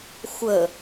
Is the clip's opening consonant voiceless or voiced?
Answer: voiceless